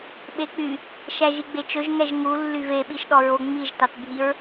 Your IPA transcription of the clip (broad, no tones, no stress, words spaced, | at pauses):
ɓek͡py | ʃæʒiɡ͡bet͡ʃɵʒ ŋɛʒŋu lːyve ɓiʃɗɔɹo ŋ͡miʒ tɑtbʱiɹ